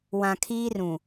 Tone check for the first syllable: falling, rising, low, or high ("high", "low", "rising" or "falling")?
low